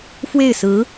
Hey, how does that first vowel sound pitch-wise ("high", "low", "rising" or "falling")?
falling